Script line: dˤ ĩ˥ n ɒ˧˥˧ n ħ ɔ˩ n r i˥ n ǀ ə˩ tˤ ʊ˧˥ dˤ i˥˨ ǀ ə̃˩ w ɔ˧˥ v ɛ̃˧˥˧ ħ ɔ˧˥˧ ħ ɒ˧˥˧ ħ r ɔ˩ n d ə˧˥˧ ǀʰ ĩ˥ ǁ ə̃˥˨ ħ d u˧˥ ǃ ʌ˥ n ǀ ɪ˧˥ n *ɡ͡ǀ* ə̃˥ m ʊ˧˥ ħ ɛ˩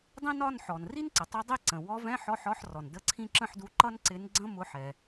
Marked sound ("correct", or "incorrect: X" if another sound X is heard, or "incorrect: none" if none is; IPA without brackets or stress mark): correct